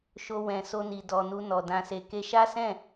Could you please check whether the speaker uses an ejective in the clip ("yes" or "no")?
no